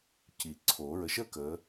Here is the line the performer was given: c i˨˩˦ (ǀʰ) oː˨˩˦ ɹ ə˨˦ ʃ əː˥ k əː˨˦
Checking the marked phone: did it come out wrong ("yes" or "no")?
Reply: no